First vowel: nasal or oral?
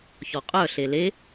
oral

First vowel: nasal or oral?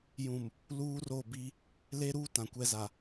nasal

